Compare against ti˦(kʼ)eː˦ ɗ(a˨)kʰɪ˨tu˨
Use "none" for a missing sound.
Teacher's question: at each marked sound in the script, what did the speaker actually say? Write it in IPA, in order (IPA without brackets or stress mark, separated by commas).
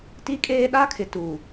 kʼ, a˦